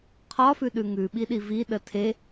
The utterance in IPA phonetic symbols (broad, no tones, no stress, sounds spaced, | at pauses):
qʰ ɒ f ʉ ɗ ʉ ŋ ʉ ɓ i ɗ i v i ɗ ə tʰ e